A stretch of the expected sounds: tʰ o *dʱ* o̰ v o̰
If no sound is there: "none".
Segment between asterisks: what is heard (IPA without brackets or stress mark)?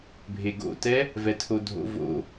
dʱ